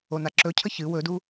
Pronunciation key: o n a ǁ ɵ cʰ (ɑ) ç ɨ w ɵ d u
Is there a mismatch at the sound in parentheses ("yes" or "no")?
yes